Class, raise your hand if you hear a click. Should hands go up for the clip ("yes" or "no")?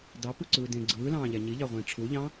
yes